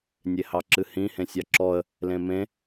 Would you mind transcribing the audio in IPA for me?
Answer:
nʲ e h ɑ ǁ ɨ h ĩ h ẽ sʲ ɑ ǁ ɔ ə̯ | l ẽ m ẽ

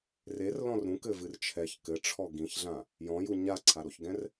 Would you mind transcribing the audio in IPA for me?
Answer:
r e r l ɔ̃ r ɾ ũ k ɘ v ɨ r t͡ʃʰ ɛ ç k ɘ ʈ͡ʂʰ ɔ ɡ ĩ ç ɮ ã | j ɔ̃ j u ɲ a ǀʰ a ɾ o ç ɡ ɛ̃ r

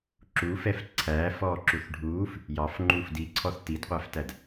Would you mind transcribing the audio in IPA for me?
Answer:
ǁ u f ɛ f ǀʰ æː f ɔː ǁ u θ ɖʱ uː f | j ɑ f ŋ͡ǃ uː f d i ǀʰ ɔ θ t i d qʷ æ f t æ d

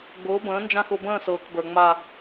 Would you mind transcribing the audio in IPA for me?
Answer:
ɡ͡b ʊː˨˥ b ə̃ː˨˥ n d͡ʒ ã˥˧ x ʊ˥˧ b ə̃ː˥˧ s ɤː˨ k b ə˞˨ ŋ͡m a˥˧

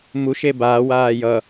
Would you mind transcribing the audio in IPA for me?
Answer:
m u ʃ e b aː w aː j ʌ

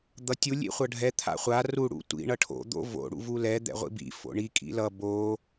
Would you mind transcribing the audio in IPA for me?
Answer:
d̪ ʌ tʲ u lʲ ḭ χʷ ʌ ɖʱ ɛ t̪ʰ a̰ χʷ a r u ɽ ṵ tʷ ḭ ɳ ʌ ʈʰ o̰ d̪ o̰ v o̰ ɽ ṵ v u l ɛ d̪ ɛ̰ ʁʷ ḭ b ḭ f o̰ ɳ i kʼ ḭ l ʌ b o

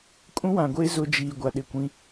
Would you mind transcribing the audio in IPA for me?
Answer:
kʼ ũ˦ w ã˨ ɡʷ eː˦ z ʊ˦ d͡ʒ iː˨ ɡʷ a˨ ɗ ɪ˦˨ kʷ ĩ˦

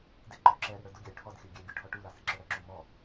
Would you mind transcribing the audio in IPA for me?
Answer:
d ɪ ǃ ɔ ǁ ɛ ɾ ɪ ɽ ə˞ d ʊ ɡʲ ɑ y̯ ʈʰ ɔ d xʲ ə˞ ɡʲ ɛ ɡʲ u ʈʰ ɔ ʈ u l ɑ s ɪ ǁ ʌ ɽ ə ǁ u m ɔ

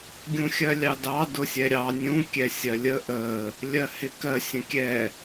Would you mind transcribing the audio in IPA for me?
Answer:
ɡʲ ũ xʲ ɜ lʲ ɑ d ɑ d ʊ sʲ ɛ ɾʲ ɑ nʲ ũ kʲ ɛ sʲ ɜ lʲ ə ʔ ə | lʲ ɜ h ɪ k ɜ sʲ ə̃ kʲ ɛ

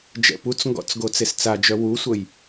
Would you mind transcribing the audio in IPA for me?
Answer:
d͡ʒ ɛ̰ p u t͡s ŋ ɡ ɔ̰ t͡s ɡ o t͡s e s t͡s a d͡ʒ œ w u sʷ ə j

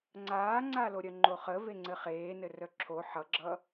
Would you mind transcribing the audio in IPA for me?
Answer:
ŋ͡ǀ aː ŋ͡ǀ a l o ɾʲ œ ŋ͡ǃ o χ ə v e ŋ͡ǀ ɘ χ eː n ɘ r œ ǁʰ o ħ ʌ ɡ͡ǁ ʌ

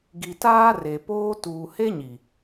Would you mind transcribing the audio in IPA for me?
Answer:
ɡ i˨ t aː˦ r e˨ p oː˦ t uː˨ h e˦ ɲ i˨

